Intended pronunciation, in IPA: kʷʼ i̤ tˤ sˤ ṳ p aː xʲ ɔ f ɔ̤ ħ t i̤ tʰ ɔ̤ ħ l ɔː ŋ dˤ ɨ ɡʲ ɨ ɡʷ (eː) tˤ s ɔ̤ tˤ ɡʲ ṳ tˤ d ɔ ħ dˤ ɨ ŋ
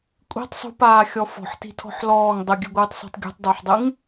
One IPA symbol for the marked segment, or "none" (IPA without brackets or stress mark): ɨː